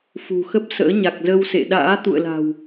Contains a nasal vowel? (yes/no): no